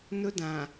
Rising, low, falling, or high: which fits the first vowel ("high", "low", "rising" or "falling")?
high